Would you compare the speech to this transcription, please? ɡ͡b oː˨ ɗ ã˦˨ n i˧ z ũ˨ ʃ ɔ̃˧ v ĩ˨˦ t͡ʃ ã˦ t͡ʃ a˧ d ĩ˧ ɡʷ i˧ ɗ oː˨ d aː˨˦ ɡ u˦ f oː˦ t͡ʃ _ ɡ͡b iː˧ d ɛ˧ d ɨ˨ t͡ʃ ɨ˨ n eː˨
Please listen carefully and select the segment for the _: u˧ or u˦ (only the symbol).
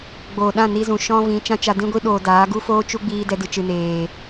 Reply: u˦